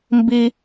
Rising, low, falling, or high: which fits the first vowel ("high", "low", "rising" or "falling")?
high